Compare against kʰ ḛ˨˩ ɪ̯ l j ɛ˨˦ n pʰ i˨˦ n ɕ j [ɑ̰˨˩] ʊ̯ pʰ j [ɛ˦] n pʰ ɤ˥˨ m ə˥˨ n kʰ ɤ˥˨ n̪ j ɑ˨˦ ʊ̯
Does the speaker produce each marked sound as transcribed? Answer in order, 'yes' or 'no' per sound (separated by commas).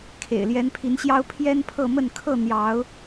no, yes